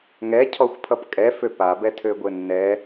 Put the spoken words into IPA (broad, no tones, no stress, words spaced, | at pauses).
ŋɛcʰɔxʷpʰʌp kʼɛ føpabɛ tʰøɡʷɘnːɛ